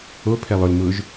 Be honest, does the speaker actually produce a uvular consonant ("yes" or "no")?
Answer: no